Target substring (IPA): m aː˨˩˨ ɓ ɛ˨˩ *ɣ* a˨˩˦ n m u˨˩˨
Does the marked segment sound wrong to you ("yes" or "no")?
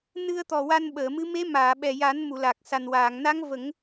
yes